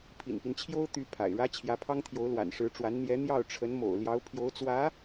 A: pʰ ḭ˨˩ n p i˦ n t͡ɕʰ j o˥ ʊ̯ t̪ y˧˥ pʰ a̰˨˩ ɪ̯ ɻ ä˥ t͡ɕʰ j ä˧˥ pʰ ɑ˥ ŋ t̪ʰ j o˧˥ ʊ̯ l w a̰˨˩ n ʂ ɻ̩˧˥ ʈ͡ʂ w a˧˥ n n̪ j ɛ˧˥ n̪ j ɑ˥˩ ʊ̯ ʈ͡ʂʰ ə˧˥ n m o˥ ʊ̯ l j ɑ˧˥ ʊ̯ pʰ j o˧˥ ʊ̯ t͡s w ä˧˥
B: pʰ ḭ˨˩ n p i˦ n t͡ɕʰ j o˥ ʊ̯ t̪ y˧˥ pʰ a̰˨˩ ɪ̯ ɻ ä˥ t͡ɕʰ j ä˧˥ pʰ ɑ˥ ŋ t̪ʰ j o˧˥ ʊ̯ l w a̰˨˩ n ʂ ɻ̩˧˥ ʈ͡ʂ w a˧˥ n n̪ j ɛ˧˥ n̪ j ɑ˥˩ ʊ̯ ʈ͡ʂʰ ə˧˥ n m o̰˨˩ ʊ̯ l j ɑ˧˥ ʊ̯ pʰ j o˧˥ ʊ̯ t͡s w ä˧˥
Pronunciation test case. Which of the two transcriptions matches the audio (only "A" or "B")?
B